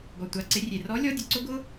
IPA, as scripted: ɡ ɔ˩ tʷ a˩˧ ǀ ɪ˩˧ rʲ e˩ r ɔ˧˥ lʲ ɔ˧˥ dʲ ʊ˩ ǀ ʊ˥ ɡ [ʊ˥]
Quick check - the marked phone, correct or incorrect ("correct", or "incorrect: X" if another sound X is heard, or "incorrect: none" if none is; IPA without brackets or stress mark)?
correct